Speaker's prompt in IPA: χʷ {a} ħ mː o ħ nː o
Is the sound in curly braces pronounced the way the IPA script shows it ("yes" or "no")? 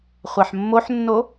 yes